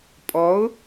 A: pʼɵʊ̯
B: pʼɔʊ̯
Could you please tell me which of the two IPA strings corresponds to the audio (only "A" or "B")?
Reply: B